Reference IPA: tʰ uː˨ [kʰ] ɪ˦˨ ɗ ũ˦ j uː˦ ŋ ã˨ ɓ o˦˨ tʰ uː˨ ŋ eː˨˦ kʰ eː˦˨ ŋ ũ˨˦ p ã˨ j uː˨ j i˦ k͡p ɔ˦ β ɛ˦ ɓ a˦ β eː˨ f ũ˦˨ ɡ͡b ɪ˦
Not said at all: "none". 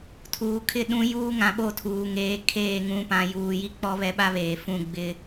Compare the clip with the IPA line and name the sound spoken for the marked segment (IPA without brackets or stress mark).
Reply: kʰ